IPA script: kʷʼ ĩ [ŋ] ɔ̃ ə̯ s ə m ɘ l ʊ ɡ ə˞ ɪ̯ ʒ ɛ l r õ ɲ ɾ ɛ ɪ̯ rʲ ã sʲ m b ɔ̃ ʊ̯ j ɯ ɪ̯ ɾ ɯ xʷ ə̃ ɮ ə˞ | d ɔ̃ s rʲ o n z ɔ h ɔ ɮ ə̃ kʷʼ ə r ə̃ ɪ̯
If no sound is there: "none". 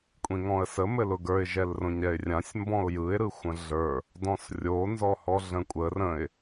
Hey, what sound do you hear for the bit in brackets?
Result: ŋ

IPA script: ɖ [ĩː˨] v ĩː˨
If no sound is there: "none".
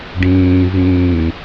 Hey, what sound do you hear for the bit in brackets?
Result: ĩː˨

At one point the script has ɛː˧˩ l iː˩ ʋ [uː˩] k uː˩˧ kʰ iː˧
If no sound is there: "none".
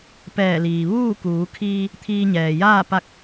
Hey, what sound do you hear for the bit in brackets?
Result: uː˥˨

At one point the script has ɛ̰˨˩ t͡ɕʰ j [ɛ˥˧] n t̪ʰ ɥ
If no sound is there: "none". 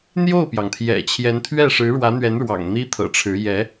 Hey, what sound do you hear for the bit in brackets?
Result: ɛ˧˥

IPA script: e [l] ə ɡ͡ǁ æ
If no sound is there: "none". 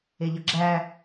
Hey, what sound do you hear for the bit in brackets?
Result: ʎ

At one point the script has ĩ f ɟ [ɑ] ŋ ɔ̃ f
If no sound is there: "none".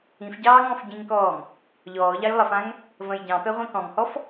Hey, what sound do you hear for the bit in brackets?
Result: ɑː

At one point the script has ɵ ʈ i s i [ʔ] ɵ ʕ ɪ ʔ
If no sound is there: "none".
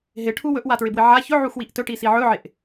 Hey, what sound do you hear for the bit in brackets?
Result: ʕ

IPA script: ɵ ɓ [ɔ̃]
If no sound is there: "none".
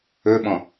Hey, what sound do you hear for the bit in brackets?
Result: ɔ̃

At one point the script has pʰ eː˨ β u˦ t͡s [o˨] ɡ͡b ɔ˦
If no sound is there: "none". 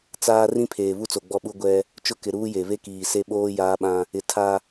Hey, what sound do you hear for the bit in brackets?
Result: o˨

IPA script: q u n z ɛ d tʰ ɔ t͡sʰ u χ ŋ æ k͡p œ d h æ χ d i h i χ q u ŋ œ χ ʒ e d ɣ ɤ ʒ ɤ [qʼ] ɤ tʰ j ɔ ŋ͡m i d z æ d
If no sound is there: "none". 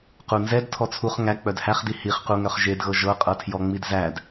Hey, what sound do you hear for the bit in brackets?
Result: qʼ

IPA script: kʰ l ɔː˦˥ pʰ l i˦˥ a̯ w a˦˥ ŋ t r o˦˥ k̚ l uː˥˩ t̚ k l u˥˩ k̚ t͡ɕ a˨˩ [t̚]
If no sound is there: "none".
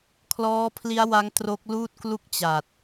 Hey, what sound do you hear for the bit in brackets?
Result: t̚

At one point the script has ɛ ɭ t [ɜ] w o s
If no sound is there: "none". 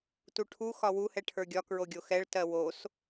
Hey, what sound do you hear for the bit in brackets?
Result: ɜ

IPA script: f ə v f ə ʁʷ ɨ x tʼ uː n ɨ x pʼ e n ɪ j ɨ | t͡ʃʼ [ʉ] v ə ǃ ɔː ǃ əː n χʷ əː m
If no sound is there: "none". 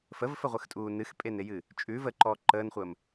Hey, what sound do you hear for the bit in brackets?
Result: ʉ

